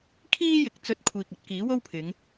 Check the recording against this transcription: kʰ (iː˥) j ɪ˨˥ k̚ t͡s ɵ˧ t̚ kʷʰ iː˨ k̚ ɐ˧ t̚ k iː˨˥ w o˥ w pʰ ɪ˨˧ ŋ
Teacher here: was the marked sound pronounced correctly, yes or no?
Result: yes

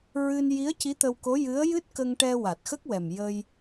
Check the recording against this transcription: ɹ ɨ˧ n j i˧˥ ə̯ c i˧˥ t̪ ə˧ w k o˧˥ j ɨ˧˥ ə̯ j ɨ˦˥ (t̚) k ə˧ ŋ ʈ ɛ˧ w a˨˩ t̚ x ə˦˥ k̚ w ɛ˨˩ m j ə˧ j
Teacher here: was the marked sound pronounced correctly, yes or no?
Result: yes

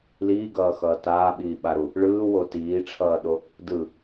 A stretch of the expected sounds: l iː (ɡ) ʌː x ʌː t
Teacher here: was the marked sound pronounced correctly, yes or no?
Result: yes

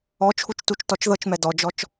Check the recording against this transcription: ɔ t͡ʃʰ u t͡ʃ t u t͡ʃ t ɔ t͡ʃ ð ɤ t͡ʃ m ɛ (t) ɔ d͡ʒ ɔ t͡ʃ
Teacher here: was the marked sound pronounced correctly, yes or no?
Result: no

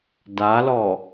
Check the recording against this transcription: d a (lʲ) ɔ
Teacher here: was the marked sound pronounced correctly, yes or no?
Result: no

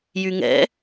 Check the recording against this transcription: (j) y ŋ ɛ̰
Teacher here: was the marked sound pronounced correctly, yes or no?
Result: yes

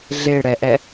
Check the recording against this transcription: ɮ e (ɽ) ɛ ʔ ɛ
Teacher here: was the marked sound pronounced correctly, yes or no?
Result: yes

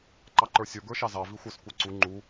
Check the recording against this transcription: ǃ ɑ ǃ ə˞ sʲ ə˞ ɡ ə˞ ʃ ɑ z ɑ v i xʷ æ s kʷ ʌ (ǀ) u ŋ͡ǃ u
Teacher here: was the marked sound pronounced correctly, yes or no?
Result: yes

